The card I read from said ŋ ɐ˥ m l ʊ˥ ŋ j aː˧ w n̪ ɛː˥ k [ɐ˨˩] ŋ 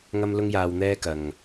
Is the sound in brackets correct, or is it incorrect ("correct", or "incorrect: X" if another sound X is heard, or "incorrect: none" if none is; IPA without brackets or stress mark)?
incorrect: ɐ˨